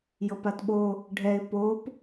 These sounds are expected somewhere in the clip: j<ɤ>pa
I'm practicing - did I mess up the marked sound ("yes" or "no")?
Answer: no